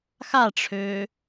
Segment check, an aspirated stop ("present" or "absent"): present